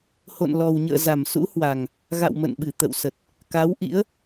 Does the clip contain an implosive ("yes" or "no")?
yes